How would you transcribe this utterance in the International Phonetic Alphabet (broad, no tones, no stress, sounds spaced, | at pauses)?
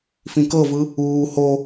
f ĩ k ɤ v ɯ | uː h o